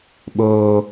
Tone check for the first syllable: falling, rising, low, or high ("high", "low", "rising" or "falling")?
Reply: low